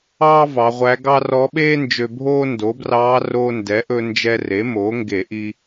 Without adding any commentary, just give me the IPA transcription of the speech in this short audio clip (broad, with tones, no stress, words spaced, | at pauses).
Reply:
ɑː˥vɑ˩˧ ʁʷæ˧˥ɡɑ˥ rɔ˧˥ɓeː˥ nd͡ʒø˧bʱoː˥ ndo˩˥brɑː˧˥ roː˧ndɛ˩˥ʔɵ˧ nd͡ʒɛ˧re˩˥moː˩˥ ŋɡe˧˩˧ʔi˧